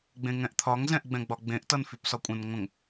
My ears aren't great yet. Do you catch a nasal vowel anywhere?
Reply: yes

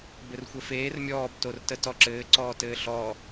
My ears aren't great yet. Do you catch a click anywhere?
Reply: yes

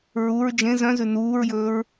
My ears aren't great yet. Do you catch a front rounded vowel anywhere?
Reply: yes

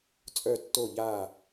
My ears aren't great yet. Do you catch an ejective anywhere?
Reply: yes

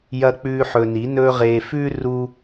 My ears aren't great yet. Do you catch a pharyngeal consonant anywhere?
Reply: yes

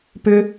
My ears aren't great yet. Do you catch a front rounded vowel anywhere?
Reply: yes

